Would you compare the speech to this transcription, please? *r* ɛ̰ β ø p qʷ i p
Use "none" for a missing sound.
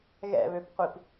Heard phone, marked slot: ɣ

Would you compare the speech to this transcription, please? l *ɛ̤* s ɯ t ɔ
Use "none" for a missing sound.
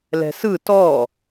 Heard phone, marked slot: ɛ̤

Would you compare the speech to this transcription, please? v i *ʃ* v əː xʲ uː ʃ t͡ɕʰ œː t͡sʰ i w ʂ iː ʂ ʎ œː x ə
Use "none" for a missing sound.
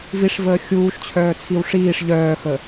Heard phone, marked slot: ʂ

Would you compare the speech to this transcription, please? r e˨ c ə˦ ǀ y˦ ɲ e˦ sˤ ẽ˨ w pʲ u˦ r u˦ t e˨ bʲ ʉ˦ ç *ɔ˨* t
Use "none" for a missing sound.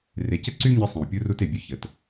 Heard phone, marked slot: ə˨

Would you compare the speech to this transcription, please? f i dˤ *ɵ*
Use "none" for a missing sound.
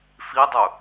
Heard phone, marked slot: ɵ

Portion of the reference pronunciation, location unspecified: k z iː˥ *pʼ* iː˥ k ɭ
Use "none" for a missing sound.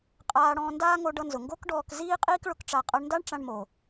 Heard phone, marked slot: qʼ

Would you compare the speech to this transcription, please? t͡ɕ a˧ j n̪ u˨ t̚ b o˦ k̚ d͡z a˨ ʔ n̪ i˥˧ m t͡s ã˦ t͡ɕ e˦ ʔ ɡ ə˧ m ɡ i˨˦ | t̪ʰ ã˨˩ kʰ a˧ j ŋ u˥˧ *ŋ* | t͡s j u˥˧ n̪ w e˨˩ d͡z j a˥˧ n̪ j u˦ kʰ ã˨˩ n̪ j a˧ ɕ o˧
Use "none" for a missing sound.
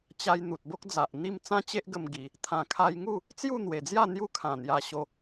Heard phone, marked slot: none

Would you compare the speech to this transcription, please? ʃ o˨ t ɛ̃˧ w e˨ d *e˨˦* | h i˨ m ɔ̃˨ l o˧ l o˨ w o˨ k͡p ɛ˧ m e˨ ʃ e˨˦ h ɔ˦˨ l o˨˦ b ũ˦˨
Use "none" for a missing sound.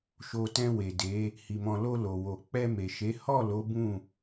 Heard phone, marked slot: e˨˦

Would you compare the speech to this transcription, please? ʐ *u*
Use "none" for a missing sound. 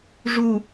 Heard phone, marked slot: u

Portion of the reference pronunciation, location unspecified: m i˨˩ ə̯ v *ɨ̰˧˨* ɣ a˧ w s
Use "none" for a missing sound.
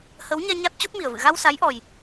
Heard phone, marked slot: ɨ̰˧˨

